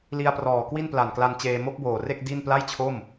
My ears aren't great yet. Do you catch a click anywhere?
no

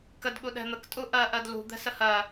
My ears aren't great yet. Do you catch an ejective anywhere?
yes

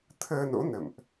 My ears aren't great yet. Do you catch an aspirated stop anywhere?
yes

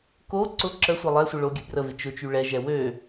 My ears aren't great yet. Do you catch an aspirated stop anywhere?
no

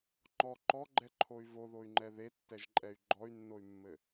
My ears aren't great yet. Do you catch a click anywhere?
yes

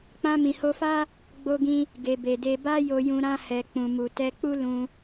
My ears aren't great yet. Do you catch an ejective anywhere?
no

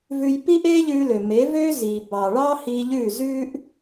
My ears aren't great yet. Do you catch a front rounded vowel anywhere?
yes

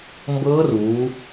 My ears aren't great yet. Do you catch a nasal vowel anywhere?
no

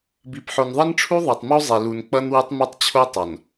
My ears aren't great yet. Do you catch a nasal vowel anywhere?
no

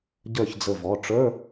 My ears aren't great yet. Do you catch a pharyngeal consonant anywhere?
no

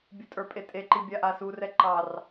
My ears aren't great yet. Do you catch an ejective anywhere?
yes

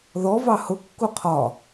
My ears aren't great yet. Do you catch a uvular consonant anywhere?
yes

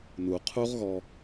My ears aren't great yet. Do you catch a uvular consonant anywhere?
yes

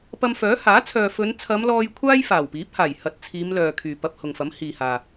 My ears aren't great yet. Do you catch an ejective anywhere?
no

